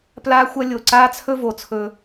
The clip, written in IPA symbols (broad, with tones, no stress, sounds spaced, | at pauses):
p l aː˦ xʷ ɐ˦ lʲ o˨ ǀ aː˦ t͡sʰ ɵ˦ v o˨ t͡sʰ ɵ˦